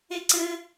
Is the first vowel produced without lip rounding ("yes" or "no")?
yes